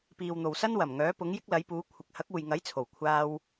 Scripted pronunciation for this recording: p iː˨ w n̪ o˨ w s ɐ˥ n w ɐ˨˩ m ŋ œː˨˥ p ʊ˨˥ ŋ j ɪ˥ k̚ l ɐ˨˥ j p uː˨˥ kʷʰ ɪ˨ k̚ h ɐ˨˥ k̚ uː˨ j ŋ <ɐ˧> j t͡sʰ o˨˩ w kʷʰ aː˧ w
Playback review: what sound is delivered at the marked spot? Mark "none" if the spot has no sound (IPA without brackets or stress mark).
ɐ˨˥